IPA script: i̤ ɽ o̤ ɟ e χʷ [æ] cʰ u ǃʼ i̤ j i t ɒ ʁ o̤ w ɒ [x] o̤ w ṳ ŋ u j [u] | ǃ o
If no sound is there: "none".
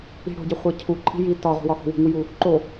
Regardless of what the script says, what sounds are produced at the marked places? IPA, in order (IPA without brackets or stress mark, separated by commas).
æ, x, u